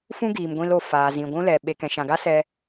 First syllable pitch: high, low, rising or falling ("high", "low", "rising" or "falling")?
high